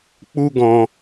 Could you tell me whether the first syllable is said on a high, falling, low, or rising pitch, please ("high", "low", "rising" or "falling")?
high